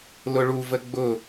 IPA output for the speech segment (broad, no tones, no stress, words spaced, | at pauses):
lʊɭuvə ɡ͡bʊ